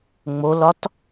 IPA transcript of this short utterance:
ŋ͡molɒt

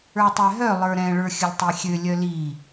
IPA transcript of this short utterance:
ə˞tˤɛɦœ lˠə˞ɾɛ̃ ɭə˞xʲəlʲtˤexʲø lʲœli

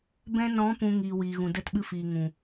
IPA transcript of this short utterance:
bɛ̃˧nɔ̃˨˦ pũ˧ ŋiː˨wiː˨ɣũ˨ də˧t ɓɨ˧fiː˨ŋũ˨

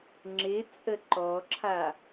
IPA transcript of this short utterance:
ŋ͡ǁɪt͡sʼə ǃɔǁʰa

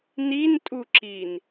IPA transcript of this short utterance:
nintʼuǁin

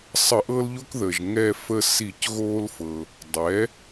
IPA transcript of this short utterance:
sˤə˧˩˧ʔɤ˦lʎo˦k ðəː˩ʒ ŋɛ˦˨ fə˦˨si˧˩˧c ɣoː˦lfɤ˩ | dˤɛ˩˥

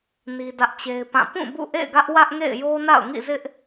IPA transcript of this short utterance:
ni˦dä˦ʔt͡ɕe˦ɪ̯pã˦˨ pũ˦˨ bṵ˦˨ ʔḛ˦˨ɪ̯ɡä˦ʔ wä˦ʔŋḛ˦˨ɪ̯jo˦ na̰˦˨ʊ̯ŋḭ˦˨zɪ˦ʔ

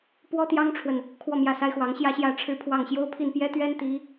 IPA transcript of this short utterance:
pwɔ˥t̪jɑ˥ŋʈ͡ʂʰwə˨n | kʰwɔ˥˧mjä˥˩sa˥ɪ̯xwɑ˧˥ŋ ɕjä˥˧ɕjä˥˧ ʈ͡ʂʰɻ̩˥˧pʰwɑ˥˩ŋɕjo˥ʊ̯ pʰi˥˩npjɛ˥t̪ɥɛ˥n t̪i˧˥

